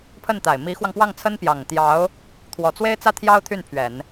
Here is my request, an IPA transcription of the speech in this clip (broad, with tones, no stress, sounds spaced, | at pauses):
pʰ ə˥˩ n t̪ a˨˩ ɪ̯ m i˧˥ x w ɑ˧ ŋ p w ɑ˥˩ ŋ t͡sʰ ə˥ n p j ɑ˨˩ ŋ t̪ j ɑ˧˥ ʊ̯ | t̪ʰ w ɔ˨˩ t͡s w e˥ ɪ̯ t͡s ä˥ t̪ʰ j ɑ˥ ʊ̯ t̪ʰ y˥˩ n pʰ ɥ ɛ˨˩˦ n